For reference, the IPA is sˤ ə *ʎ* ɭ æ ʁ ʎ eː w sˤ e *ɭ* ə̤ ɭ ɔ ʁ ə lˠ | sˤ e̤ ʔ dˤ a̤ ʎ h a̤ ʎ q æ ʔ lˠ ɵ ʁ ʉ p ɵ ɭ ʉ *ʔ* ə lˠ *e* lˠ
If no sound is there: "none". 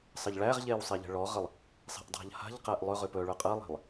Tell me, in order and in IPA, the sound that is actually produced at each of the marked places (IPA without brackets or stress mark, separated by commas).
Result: ʎ, ʎ, qʼ, e̤